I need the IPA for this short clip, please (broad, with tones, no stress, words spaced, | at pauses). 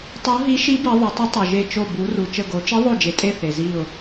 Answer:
tˤo˧˥ɦi˧˥ʃi˧˥bi˩˧ ðˤə˩˧tˤə˧˥tˤu˩ʒe˧˩ t͡ʃo˧˩bu˩˧ru˩ t͡ʃə˧˩ɡo˩˧t͡ʃi˧˥ ðˤo˧˩d͡ʒe˩tʼe˧˩ θe˩zi˧˩ʊ̯